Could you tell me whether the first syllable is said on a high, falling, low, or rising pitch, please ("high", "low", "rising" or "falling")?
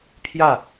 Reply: falling